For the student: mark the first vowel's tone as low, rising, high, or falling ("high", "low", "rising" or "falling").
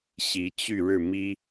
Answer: rising